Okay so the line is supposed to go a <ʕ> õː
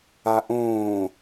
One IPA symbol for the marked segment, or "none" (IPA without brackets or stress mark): ʔ